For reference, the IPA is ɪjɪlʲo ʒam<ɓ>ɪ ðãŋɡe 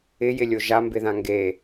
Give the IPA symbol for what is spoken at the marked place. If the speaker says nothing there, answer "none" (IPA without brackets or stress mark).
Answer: b